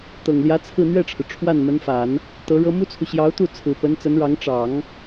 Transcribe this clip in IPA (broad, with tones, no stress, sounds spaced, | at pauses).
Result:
t̪ ɤ˨˩ ŋ l j ä˧˥ t͡sʰ ɹ̩˥˧ n̪ ɥ ɛ˥˩ ʈ͡ʂʰ ɻ̩˩ ʈ͡ʂʰ w a˥˩ n m ə˧˥ n f a˨˩˦ n | t̪ ɤ˧˥ ɻ ɤ˥ m u˥ t͡sʰ u˨ ɕ j ɑ˧˥ ʊ̯ t̪ u˥˩ t͡sʰ ɹ̩˨˩ p ə˧˥ n t͡s ə˧˥ n ɻ ɑ˧˥ ŋ ʈ͡ʂ ɑ˨˩˦ ŋ